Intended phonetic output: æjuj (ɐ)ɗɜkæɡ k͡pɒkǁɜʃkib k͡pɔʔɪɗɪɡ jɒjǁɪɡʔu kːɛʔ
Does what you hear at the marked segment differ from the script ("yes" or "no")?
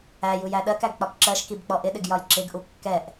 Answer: yes